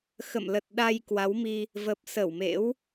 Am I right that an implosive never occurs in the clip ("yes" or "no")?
no